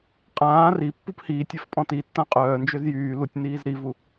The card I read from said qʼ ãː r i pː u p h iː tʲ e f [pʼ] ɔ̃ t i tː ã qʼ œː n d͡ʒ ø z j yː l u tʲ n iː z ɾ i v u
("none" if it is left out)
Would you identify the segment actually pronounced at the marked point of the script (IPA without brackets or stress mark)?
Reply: pʼ